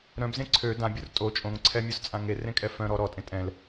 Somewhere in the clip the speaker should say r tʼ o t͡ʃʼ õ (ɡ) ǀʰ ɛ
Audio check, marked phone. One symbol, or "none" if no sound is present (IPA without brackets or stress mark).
ŋ